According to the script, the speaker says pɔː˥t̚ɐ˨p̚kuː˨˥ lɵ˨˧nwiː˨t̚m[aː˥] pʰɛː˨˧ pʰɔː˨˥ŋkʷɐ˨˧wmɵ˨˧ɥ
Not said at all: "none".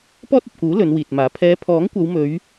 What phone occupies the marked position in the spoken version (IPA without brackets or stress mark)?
aː˨˥